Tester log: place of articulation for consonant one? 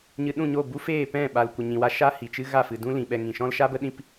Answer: palatal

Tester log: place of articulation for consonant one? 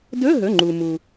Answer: alveolar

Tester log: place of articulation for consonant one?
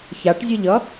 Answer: palatal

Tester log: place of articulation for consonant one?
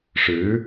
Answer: retroflex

